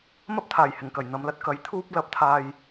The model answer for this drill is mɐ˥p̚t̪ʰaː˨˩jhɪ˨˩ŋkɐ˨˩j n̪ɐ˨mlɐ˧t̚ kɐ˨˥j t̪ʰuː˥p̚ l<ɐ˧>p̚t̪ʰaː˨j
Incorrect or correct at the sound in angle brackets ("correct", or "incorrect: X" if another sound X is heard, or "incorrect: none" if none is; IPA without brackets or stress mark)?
incorrect: ɐ˨˥